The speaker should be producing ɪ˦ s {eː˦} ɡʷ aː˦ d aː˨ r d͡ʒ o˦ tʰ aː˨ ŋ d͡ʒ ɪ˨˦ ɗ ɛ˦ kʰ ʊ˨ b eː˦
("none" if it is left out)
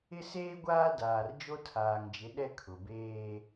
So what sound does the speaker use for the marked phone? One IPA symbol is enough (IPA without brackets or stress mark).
eː˦